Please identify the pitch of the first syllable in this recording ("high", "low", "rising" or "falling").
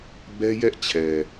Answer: high